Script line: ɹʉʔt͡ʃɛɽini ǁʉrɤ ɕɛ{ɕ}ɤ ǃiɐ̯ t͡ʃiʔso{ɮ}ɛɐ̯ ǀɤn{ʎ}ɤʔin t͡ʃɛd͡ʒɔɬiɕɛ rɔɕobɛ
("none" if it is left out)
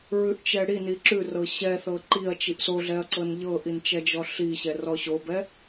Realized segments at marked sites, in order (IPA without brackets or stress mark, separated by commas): θ, ɮ, ʎ